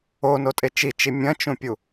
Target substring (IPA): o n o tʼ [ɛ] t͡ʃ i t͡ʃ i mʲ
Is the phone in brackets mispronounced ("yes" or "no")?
yes